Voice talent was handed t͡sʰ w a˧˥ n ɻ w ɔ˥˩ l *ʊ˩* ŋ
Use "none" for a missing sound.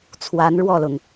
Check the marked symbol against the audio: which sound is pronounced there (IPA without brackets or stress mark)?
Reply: ʊ˩